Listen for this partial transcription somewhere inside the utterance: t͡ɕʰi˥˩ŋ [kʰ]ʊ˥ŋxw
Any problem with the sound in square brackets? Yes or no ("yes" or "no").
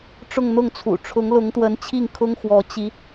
no